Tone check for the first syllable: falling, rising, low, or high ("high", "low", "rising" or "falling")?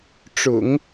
low